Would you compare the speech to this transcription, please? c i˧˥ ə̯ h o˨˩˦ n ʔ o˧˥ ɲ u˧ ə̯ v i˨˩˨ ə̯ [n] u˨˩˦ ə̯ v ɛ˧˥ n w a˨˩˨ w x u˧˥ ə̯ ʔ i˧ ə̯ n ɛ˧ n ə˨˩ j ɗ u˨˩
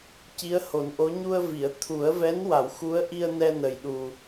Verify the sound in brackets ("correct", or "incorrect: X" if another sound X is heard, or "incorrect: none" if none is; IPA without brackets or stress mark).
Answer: incorrect: t̪ʰ